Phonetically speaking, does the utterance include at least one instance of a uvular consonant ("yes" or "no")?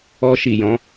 no